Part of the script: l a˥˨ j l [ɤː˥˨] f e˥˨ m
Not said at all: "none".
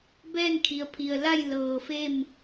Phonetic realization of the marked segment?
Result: ɤː˧˩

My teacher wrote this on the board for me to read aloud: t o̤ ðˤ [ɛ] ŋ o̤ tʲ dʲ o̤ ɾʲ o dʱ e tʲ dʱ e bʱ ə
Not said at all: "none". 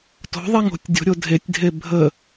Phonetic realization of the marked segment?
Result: ɛ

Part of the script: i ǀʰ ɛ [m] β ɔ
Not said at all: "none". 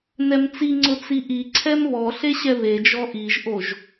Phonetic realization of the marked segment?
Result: m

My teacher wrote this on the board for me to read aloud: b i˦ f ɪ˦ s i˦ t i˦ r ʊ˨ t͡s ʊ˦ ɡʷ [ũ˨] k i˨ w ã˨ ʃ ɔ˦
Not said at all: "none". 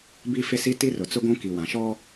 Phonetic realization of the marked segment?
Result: ũ˦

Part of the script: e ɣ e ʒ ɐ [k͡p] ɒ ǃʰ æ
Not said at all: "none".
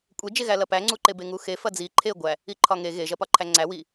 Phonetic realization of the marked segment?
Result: p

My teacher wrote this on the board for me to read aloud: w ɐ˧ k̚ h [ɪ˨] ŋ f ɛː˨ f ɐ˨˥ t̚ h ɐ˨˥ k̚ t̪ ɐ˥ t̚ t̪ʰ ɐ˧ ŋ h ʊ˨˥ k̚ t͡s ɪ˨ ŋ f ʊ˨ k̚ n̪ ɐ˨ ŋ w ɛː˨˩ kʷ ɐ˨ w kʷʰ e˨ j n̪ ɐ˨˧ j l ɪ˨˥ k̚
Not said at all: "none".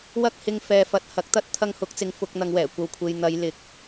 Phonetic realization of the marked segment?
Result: ɪ˨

